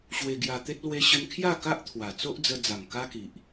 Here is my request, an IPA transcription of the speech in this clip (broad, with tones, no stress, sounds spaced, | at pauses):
ɕ w e˧ ɡ j a˧ t̪ e˦ t̚ l w e˦ ɕ ə˦ n kʰ j a˥˧ k a˦ ʔ t̪ʰ w a˨˩ t͡s o˦ ʔ d͡z ə˧ d͡z a˨˩ ŋ k a˦ k i˨ ʔ